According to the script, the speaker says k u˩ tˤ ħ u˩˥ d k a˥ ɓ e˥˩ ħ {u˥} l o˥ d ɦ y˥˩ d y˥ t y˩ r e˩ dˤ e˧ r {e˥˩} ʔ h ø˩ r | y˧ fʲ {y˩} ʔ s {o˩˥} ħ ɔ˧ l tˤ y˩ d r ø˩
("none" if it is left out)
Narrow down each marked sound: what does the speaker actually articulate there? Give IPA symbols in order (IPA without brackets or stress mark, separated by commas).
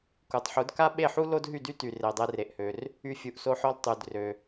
u˥, e˩, u˩, o˧